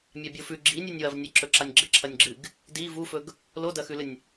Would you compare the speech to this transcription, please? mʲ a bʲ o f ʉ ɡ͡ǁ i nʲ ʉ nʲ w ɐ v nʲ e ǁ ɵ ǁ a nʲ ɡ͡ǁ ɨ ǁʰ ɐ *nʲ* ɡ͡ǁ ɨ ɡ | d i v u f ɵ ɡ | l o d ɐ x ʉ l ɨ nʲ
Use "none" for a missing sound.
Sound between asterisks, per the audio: nʲ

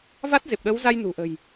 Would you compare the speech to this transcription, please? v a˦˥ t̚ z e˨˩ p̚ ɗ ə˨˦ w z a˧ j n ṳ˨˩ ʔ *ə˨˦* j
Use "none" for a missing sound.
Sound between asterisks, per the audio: ə̤˨˩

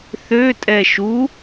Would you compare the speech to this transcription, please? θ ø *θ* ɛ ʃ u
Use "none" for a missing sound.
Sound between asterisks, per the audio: tʼ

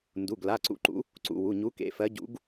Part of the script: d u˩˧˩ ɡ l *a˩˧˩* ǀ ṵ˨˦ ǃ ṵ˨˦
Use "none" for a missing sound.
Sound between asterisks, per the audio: a˩˧˩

